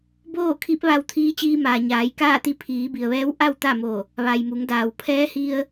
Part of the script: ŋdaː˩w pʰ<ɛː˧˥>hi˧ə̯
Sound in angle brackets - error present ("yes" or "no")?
no